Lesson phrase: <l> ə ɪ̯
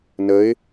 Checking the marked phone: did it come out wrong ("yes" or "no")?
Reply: yes